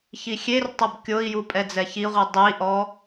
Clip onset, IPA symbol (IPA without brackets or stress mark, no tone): ç